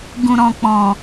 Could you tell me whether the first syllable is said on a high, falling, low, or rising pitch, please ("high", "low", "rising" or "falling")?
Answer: low